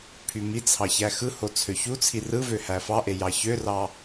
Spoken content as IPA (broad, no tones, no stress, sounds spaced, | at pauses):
pʰ y m i t͡sʰ ɑ ç æ x ɯ h o t͡sʰ ø ç u t͡sʰ i r ɯ v ø h æ f ɑ ʔ e j ɑ ç ø r ɑ